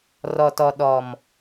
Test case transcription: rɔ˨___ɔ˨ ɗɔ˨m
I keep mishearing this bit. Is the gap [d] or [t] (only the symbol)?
t